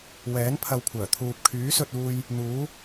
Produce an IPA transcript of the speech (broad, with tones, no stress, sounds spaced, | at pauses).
w ɛː˨˥ n pʰ ɐ˧ w kʷʰ œː˨˩ t̪ʰ uː˧ p̚ kʰ yː˨˥ s ɵ˧ t̚ uː˧ j | n̪ uː˨˥